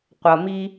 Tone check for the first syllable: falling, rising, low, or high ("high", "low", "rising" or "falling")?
low